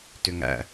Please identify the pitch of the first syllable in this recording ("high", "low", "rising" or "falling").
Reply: low